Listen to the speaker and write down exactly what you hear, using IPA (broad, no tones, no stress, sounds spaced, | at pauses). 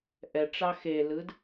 ʔ ɛ ʈ͡ʂ ɑ x e l ɯː d